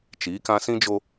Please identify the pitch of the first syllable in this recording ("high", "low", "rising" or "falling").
rising